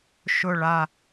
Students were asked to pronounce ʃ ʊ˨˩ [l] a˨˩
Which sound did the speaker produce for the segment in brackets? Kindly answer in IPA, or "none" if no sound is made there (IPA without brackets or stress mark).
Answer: ɭ